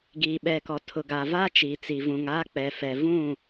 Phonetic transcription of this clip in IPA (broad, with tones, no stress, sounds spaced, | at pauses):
ɡ iː˨ ɓ ɛ˨ k ɔ˨ tʰ ʊ˨ ɡ a˨ v aː˦ t͡ʃ iː˨ t͡s i˨ v ũ˨ ŋ aː˦ k͡p ɛ˨ f ɛ˨ v ũ˦˨